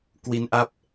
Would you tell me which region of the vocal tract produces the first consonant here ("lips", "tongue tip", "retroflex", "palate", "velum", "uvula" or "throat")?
velum